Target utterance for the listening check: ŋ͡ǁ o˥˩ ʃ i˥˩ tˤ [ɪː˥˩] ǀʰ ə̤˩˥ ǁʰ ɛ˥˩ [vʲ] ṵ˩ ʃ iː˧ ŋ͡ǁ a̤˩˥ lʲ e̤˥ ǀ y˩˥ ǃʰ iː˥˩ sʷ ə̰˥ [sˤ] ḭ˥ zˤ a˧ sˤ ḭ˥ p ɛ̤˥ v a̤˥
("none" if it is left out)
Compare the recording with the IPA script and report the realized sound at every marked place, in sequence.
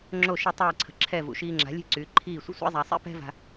ɛː˥˩, v, sʷ

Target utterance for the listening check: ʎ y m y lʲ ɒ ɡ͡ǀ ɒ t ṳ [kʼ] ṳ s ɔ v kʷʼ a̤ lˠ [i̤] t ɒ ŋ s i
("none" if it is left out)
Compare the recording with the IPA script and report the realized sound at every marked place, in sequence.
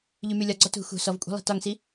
x, i̤

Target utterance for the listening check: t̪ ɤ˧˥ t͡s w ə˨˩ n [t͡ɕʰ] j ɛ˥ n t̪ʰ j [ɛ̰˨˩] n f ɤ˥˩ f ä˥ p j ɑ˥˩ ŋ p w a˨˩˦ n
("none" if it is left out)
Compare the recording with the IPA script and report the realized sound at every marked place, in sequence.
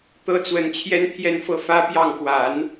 t͡ɕʰ, ɛ˥˧

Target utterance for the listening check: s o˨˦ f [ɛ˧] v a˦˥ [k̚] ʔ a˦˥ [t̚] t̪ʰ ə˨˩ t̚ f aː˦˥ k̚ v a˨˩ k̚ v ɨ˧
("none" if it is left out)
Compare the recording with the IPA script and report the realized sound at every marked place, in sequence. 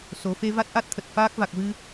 e˧, t̚, t̚

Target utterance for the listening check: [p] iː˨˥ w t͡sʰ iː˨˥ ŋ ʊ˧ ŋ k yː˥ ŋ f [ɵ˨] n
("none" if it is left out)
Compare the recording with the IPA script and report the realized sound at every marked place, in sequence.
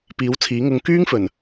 p, ɵ˨˩

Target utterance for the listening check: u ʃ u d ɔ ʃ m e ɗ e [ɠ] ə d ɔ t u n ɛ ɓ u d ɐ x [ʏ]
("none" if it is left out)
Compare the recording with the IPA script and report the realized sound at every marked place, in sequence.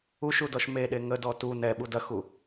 ŋ, u

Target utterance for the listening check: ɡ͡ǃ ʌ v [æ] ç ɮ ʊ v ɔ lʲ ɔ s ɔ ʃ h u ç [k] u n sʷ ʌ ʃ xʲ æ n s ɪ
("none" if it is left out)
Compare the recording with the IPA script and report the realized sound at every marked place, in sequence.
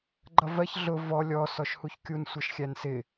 ɜ, kʲ

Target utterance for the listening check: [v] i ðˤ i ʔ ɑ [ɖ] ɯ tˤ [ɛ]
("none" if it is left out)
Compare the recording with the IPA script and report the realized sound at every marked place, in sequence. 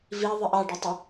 v, ɖ, ə

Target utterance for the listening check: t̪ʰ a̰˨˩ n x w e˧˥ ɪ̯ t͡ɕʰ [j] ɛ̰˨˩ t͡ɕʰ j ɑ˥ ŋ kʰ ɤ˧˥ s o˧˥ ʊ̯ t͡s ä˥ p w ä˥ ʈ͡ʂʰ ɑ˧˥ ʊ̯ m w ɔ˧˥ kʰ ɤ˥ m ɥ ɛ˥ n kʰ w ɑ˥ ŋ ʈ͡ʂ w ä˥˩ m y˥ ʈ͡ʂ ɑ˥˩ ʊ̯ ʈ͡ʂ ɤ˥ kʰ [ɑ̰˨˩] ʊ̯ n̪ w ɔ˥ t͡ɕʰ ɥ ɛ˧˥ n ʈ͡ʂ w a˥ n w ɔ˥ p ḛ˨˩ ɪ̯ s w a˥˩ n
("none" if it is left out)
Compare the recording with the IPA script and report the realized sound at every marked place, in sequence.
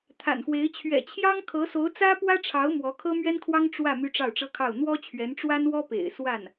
ɥ, ɑ˥˩

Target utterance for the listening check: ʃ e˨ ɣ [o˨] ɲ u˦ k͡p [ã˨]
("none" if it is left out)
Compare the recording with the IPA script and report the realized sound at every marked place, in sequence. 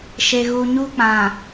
u˨, ã˨

